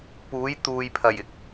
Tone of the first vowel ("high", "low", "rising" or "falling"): rising